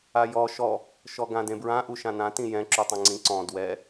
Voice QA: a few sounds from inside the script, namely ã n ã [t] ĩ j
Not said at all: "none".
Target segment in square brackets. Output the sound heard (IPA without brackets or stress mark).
t